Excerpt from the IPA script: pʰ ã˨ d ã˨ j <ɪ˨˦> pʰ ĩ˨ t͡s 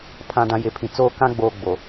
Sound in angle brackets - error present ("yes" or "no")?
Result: no